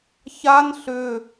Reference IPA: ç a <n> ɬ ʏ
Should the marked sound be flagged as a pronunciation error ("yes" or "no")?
no